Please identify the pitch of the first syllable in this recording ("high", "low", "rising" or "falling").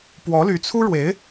rising